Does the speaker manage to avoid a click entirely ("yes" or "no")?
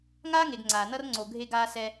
no